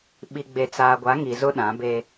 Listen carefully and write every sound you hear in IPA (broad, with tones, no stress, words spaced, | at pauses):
ɓi˨ɡ͡be˨ t͡saː˨ɡʷa˨˦ ŋi˨zʊ˦ ɗã˨˦be˦